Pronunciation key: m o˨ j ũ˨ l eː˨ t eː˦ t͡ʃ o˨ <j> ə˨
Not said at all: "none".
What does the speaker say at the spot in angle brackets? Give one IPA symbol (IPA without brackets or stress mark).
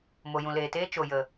j